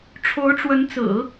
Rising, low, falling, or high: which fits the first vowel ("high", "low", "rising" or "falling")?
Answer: rising